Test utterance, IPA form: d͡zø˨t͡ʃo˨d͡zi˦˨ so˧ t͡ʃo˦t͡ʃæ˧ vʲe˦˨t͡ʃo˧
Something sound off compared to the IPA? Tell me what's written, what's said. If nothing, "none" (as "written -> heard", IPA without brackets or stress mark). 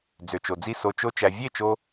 none